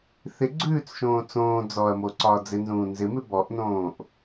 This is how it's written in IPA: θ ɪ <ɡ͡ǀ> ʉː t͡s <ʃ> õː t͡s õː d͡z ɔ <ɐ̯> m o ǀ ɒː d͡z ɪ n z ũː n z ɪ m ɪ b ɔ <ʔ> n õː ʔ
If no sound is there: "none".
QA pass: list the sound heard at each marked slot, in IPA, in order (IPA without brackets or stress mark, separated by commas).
ɡ͡ǀ, ʃ, ɐ̯, ʔ